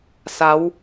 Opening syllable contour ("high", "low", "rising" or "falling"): rising